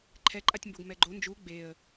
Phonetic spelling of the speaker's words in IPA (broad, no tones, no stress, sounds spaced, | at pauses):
ǃʰ ɛ ǃʼ a tʲ m b o ɡ m ɛ ɡ͡ǃ o n d͡ʒ u ɡ͡b e ə̯